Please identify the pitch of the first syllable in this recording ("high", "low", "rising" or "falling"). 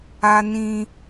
high